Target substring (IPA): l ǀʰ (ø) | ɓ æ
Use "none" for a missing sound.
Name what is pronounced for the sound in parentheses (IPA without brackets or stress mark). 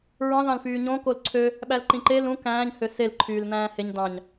ø